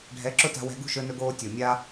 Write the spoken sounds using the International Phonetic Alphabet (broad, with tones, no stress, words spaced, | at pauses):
ɖʱɛ˨˦ǁʊ˦ta̤˧wɛ̤˧ ɡṳ˦ʃɵ˧nɵ˧ɡoː˧ tʲo˨mʲa˦